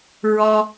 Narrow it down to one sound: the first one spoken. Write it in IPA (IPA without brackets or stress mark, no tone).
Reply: ɹ